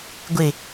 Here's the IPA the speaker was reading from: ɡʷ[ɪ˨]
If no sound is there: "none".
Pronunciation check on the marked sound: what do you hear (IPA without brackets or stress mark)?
ɪ˨